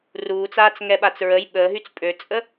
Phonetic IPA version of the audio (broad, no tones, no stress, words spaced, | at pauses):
ruːt͡saːt͡sŋɛɓat͡s ɹəj ɓəːɦyt͡s pʼøt͡sʼə